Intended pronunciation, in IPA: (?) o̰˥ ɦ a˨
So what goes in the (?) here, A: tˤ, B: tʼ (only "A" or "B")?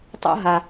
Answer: A